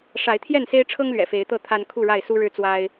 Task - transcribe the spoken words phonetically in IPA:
ʂ a˨˦ ɪ̯ t̪ʰ j ɛ˥˨ n s e˦ ɪ̯ ʈ͡ʂʰ ɤ˦ ŋ l ɥ ɛ̰˨˩ f e˨˦ ɪ̯ t̪ ɤ˥˨ t̪ʰ a˦ n kʰ u˥˨ ɻ a˥˨ ɪ̯ s u˦ ɻ ɻ̩˦ t͡s w a˦ ɪ̯

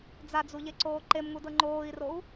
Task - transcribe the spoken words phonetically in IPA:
d͡z a d͡z u ʎ e ǀ oː ǃ e m ŋ u d ɤ ŋ͡ǃ oː i̯ r o u̯

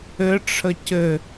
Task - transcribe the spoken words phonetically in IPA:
ɘ ʈ͡ʂʰ ə c ɘ

